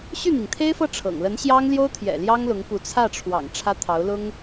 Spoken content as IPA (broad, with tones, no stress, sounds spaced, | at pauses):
ɕ y˥˩ n̪ i˩ ŋ t̪ʰ e˥ ɪ̯ f ɤ˥˩ ʈ͡ʂʰ ɤ̰˨˩ ŋ l ə˧˥ n ɕ j ɑ˥ ŋ l j o˥ ʊ̯ t̪ʰ j ɛ̰˨˩ l j ɑ˥ ŋ l ʊ˧˥ ŋ p u˧˥ t͡sʰ ä˥˩ ʈ͡ʂʰ w ɑ̰˨˩ ŋ ʈ͡ʂʰ ä˥ t̪ʰ ɑ˧˥ ʊ̯ l ʊ˥ ŋ